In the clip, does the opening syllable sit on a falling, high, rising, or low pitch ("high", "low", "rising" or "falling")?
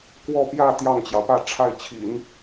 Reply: falling